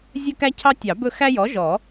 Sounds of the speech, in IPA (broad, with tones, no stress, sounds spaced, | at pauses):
zʲ ɵ˦ k æ˦ cʰ ɑ˦ tʲ ɑ˨˩˦ b ɵ˥˩ x æ˦ j ɔ˩˥ ʒ ɔ˨˩˦